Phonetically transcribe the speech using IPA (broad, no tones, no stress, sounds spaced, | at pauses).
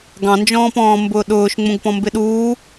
ɡ ɑ̃ n d͡ʒ ɔ̃ː p ɔ̃ː m b ʊː ɗ ʊː ʃ ŋ͡m ũ ɡ p ɔ̃ m b ɪ ɗ uː